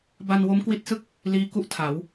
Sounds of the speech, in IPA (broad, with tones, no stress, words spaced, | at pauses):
ba˧nwo˦˥mkwi˦˥t̚sɯ˥˩k̚ | liː˦˥ku˦˥ʔtʰa˩˦w